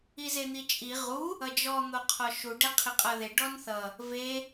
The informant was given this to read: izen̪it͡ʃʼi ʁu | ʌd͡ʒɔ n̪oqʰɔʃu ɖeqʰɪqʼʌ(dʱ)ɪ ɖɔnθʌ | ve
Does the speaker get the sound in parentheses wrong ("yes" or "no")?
yes